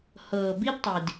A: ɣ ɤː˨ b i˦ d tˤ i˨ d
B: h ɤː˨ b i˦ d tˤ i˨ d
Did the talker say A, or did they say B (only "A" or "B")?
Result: B